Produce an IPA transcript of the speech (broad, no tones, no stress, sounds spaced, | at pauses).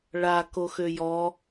ɭ a k o x ø j ɔ